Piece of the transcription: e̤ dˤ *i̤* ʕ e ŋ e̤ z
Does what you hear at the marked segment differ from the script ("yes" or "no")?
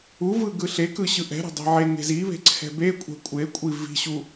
yes